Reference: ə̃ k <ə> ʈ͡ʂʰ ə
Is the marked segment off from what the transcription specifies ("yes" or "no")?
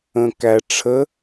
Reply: yes